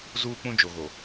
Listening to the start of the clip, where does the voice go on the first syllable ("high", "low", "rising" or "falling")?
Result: high